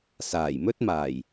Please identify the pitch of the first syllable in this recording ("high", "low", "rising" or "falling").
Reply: low